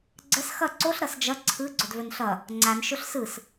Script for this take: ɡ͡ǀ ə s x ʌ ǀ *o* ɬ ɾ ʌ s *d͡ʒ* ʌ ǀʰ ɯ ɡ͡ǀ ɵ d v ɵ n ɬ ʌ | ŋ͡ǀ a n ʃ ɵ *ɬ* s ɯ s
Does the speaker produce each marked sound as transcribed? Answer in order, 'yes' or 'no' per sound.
yes, yes, yes

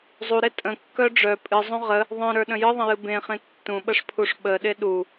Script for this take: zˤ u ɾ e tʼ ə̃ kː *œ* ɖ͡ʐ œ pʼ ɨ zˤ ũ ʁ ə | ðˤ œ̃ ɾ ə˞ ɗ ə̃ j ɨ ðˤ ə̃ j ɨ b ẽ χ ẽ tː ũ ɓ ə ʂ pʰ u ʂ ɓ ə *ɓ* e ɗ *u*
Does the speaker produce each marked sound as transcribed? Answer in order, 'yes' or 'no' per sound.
yes, no, yes

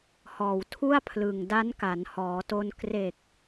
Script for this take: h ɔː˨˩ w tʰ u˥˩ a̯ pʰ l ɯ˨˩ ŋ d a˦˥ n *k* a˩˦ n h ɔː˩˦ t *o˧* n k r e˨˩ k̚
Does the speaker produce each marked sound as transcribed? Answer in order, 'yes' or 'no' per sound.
yes, yes

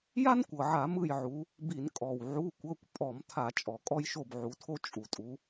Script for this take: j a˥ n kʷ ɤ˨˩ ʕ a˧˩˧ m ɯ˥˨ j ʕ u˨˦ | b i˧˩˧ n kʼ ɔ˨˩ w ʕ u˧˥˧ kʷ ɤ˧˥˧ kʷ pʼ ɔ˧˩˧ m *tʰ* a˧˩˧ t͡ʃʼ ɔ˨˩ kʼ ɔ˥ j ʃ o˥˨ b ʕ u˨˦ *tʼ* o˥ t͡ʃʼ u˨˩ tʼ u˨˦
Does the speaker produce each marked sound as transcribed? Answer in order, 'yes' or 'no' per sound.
yes, no

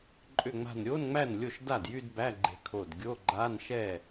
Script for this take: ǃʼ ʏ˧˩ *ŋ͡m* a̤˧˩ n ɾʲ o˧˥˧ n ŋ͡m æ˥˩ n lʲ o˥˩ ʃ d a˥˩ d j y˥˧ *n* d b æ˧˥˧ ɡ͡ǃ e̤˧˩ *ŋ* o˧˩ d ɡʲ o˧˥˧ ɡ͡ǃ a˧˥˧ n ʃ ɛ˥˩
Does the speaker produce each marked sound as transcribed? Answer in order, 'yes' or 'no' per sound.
yes, no, no

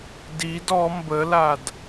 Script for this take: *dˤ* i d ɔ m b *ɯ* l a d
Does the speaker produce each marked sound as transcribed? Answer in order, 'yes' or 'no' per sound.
no, no

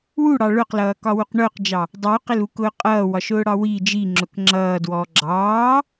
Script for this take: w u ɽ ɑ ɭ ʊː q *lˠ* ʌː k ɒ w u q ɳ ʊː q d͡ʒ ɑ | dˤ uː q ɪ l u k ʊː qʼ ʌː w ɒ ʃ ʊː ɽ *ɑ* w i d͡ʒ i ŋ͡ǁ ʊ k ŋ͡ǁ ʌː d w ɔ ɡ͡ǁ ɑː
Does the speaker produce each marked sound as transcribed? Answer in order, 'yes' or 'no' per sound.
no, yes

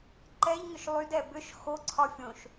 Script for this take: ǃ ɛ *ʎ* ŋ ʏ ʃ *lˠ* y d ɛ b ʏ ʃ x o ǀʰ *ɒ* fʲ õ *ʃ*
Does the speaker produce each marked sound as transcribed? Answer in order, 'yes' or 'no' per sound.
yes, yes, yes, yes

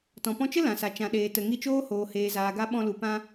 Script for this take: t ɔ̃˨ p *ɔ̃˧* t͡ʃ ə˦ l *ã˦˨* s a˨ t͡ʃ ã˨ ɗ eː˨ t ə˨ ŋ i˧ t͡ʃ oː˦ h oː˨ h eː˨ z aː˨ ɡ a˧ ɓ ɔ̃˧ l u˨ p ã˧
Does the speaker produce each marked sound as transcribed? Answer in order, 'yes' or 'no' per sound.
yes, no

